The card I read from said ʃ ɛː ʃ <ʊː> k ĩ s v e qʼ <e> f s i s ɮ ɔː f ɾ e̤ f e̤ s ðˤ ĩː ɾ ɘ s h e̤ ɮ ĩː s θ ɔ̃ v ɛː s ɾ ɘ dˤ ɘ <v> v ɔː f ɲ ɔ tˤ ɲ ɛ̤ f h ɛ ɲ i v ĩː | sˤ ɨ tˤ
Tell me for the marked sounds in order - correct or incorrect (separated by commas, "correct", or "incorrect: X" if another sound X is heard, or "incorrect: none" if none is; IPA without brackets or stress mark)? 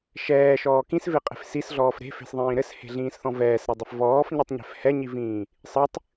incorrect: ɔː, incorrect: e̤, incorrect: f